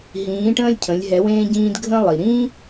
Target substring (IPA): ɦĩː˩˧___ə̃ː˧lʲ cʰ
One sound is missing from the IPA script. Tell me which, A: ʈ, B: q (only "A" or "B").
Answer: A